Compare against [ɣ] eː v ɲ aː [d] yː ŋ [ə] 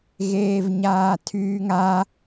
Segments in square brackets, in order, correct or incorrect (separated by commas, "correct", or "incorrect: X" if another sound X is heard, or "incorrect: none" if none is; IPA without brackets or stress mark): correct, incorrect: tʰ, incorrect: a